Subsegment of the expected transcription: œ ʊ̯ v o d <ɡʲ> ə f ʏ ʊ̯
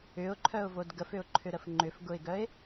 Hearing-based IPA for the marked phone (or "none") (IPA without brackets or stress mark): ɡ